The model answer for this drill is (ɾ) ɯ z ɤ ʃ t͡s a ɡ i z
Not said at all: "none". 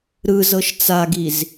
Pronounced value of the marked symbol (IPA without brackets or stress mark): ɾ